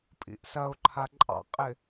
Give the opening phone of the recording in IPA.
pʼ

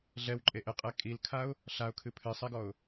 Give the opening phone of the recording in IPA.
ɮ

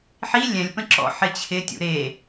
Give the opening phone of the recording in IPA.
ħ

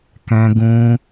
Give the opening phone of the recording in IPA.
k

